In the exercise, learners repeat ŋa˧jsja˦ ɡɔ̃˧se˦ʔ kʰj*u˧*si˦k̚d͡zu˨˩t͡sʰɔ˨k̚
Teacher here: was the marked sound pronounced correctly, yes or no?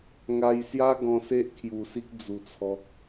no